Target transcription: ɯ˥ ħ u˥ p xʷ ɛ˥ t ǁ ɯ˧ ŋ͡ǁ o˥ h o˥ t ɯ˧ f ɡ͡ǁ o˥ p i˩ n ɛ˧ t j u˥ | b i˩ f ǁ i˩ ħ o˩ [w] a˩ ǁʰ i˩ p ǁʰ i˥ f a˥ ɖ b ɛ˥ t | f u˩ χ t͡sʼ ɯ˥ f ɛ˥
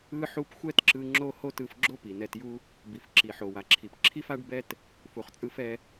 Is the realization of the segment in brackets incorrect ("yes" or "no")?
no